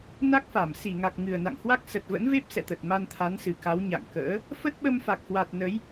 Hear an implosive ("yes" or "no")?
yes